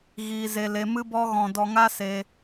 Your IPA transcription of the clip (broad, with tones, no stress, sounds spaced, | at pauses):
ɣ iː˧ z e˧ l e˧ m ɨ˦ b ɔ˦ ɣ ɔ̃˧ d ɔ˧ ŋ a˦ s e˧